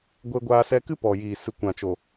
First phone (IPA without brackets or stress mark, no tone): ɡʷ